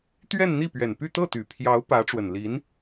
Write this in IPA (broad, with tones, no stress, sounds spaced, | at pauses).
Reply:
t̪ ɥ ɛ˥˧ n n̪ i˥˩ p ɥ ɛ˨˩ n p y˥˧ t̪ ɤ˥˩ t̪ y˨˩ pʰ j ɑ˧˥ ʊ̯ p ä˧˥ ʈ͡ʂ w ə˨˩ n l i˧˥ n